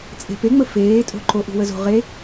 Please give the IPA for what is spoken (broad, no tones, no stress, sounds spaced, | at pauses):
t͡sʼ e̤ p e ŋ͡m ə f eː tʼ o̤ ǃ o ʔ ṳ w ə z o̤ ʁ e